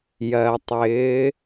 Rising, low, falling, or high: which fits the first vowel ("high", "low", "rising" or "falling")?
low